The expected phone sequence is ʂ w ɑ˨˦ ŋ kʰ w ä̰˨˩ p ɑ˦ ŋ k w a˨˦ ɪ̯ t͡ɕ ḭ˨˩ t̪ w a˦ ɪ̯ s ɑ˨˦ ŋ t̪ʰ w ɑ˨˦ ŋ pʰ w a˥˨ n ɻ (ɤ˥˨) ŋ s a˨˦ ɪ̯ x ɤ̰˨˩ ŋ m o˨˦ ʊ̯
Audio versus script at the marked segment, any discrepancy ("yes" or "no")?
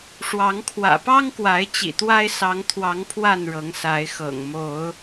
yes